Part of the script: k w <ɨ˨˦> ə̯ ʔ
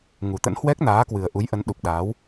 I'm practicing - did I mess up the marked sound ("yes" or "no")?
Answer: yes